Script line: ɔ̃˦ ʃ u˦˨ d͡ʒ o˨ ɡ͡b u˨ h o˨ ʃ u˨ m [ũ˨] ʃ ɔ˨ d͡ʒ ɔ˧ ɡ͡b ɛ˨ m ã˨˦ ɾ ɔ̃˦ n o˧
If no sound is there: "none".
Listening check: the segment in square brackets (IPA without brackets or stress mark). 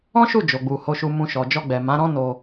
ũ˨